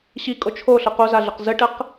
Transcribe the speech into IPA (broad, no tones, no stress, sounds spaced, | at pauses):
ɕ i kʼ o t͡ʃʰ o ɬ ə q o z a ɮ ə q z ə ʈ ə q